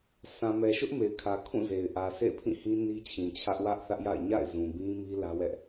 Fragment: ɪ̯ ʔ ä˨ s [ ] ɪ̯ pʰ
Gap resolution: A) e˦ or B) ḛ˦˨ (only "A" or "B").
B